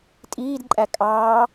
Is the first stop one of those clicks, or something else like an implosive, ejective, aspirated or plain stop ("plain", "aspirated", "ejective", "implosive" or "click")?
ejective